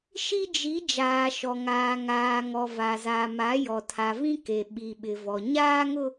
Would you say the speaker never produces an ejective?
yes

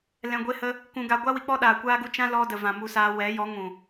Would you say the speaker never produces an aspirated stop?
yes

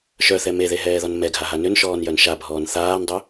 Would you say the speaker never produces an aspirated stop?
yes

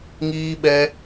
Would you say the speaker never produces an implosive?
no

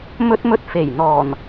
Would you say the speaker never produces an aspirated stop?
yes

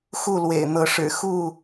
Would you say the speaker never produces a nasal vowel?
yes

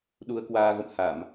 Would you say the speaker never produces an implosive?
no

